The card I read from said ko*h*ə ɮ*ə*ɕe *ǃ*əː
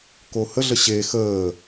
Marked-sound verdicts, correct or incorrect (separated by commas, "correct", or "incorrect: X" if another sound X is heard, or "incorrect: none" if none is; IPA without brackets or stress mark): correct, correct, incorrect: x